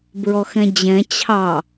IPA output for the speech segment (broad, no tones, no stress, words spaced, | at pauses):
bɹɔxɛ̃d͡ʑɛ̃ t͡ɕʰɑ